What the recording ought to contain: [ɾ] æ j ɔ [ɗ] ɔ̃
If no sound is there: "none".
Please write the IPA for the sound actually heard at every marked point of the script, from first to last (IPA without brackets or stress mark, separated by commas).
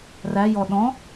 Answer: r, ɗ